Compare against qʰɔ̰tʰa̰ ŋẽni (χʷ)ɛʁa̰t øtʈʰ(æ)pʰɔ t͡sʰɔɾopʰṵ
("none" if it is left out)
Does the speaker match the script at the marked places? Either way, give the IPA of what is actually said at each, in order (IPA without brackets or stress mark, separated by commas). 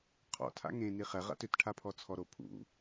χ, a